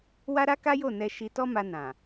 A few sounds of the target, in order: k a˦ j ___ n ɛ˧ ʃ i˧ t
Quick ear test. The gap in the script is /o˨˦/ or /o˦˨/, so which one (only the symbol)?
o˦˨